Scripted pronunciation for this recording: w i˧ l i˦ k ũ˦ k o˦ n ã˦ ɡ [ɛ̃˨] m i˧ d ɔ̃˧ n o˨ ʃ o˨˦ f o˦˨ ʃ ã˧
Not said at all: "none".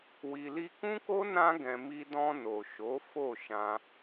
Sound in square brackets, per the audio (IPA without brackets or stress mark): ɛ̃˧